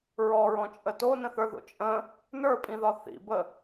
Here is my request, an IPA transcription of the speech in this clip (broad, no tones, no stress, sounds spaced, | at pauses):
ɹ ɔ ɹ ɔ̃ t͡ʃʼ ə t o n ə̃ θ ə˞ ð o̰ t͡ʃʼ ə̃ | n ə˞ pʼ ĩ ð ɒ θ ḭ b ə